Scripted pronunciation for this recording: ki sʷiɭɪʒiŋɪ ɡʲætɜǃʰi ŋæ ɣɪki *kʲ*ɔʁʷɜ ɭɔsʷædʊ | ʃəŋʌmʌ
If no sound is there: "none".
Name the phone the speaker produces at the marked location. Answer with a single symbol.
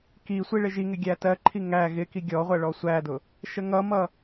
ɡʲ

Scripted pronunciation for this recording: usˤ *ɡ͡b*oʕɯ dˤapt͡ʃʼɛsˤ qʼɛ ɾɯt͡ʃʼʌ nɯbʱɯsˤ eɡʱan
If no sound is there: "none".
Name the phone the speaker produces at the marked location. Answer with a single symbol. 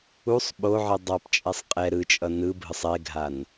ɓ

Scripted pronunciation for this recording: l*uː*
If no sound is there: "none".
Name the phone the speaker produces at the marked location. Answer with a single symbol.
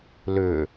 ʏː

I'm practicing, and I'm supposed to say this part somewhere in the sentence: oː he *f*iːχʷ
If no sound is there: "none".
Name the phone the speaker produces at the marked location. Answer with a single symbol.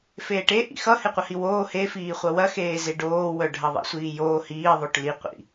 f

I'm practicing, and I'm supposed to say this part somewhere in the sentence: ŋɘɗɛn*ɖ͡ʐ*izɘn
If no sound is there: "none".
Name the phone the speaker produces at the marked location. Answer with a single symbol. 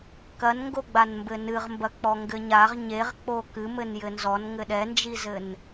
d͡ʒ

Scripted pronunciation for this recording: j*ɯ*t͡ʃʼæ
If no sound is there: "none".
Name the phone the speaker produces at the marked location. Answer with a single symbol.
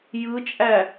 ɯ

